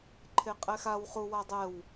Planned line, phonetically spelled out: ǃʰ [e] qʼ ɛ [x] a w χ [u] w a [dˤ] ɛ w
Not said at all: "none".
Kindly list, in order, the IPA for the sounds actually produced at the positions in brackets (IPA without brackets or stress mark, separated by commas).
e, x, u, dˤ